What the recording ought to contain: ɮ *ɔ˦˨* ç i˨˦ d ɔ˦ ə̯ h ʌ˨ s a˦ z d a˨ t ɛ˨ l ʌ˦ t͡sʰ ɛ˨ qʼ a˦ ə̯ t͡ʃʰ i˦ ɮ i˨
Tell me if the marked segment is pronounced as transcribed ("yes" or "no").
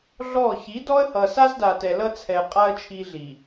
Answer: yes